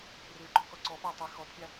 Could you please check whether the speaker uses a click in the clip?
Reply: yes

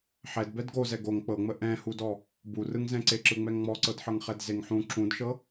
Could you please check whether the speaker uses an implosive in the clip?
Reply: no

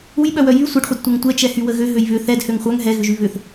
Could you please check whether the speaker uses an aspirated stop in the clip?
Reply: no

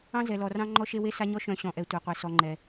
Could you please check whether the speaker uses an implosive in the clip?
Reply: no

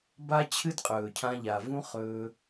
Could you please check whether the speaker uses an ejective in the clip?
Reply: yes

